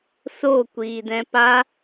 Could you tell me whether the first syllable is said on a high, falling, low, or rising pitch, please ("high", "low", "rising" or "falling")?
falling